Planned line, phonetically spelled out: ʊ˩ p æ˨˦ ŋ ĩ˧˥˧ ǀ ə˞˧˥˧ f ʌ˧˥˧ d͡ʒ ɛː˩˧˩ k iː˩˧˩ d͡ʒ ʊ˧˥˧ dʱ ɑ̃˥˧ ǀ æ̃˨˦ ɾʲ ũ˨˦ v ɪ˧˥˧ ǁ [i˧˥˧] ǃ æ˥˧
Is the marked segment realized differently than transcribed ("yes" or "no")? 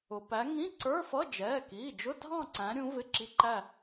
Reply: no